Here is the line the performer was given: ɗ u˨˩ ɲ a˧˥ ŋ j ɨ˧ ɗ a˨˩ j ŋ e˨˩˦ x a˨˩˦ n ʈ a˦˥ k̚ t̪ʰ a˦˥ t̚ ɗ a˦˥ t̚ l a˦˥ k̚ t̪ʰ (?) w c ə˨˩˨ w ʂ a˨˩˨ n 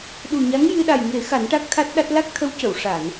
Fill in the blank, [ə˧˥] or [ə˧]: ə˧˥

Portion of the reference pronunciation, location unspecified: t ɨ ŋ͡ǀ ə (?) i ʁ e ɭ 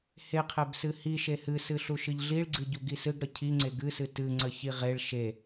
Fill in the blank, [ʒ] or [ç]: ç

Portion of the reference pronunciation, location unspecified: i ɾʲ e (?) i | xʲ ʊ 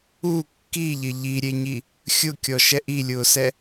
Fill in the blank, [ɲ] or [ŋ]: ɲ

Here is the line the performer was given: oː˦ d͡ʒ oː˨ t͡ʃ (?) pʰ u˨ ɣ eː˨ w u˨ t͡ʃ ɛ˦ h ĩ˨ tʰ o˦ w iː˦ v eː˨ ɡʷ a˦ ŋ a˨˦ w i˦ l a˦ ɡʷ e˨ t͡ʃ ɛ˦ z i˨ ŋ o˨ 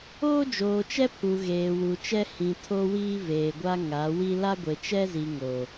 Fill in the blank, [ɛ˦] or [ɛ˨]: ɛ˦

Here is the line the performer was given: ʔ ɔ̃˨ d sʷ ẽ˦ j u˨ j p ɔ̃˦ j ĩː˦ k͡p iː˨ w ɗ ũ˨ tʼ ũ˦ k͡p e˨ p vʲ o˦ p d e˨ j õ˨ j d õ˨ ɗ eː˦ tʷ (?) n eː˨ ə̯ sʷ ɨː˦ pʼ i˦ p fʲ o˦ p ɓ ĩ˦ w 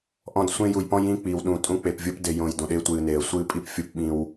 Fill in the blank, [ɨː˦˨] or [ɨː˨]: ɨː˨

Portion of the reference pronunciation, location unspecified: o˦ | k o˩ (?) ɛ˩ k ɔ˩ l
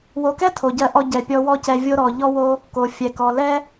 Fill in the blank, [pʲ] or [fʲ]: fʲ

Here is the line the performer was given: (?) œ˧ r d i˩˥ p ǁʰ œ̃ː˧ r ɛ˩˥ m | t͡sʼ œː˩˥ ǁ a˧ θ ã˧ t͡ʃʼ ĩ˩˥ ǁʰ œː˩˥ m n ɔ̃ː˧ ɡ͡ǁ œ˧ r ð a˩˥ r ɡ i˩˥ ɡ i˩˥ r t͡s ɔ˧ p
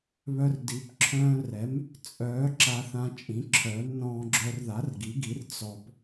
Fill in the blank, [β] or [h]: β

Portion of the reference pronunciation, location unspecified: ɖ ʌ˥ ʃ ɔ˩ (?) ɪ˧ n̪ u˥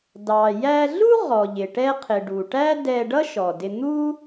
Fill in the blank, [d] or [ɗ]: d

